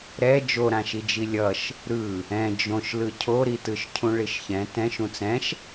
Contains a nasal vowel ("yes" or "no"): yes